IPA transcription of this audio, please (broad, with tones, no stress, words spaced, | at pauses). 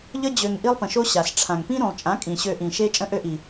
ʎə˦ d͡ʑø˧ŋʔi˦lˠpə̃˨ʃo˦ ɕa˨sʈ͡ʂʰã˨ŋ pĩ˦ɾũ˨lˠ t͡ʃʼã˨˦kʼĩ˨ ɕø˧ʔĩ˨ʃe˦ t͡ʃʼə̃˦ʔø˦ʔi˨